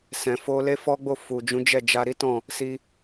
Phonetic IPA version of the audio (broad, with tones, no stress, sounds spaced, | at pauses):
s ɛ̃˨ f o˧ l e˦ f ɔ˦ ɡ͡b o˦˨ f u˨ d͡ʒ ũ˨˦ d͡ʒ ɛ˦˨ d͡ʒ a˧ ɾ i˦ t ɔ̃˦˨ | s i˧